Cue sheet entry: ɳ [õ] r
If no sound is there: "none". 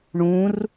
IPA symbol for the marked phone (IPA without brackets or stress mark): ũ